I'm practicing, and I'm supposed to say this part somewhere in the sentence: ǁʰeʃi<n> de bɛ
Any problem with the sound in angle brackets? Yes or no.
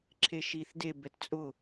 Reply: yes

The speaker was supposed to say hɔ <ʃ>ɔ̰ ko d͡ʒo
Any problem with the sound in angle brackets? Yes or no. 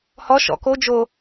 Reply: no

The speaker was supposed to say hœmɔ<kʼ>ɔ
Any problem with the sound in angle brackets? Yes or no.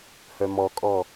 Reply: no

